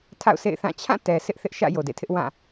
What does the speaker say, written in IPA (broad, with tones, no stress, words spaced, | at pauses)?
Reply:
tʰa̰˦˨ʊ̯sʰḛ˦˨ɪ̯θã˦˨ t͡ɕʰã˦˨ tɛ˨ sɪ˦ʔ θɪ˦ʔʃä̰˦˨ jo˨dḛ˦˨tʰɪ˦ʔwã˦˨